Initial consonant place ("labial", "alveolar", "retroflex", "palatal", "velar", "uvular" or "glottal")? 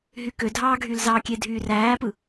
glottal